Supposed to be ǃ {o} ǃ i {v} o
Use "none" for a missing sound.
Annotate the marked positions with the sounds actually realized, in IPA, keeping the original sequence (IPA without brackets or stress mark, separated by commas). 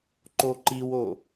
o, w